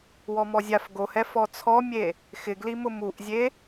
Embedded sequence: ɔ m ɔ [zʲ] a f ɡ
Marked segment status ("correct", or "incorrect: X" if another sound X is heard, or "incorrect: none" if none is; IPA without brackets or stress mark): correct